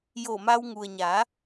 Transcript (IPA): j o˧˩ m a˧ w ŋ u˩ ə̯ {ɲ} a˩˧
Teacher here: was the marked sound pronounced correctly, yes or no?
yes